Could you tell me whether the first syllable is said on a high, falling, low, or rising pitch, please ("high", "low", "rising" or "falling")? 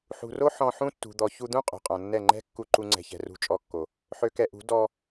low